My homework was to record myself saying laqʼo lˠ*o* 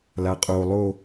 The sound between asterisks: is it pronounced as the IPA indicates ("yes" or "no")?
yes